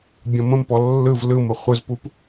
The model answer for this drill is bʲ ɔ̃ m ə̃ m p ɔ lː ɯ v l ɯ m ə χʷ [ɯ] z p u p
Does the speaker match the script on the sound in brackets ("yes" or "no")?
yes